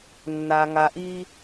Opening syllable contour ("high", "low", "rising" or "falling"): low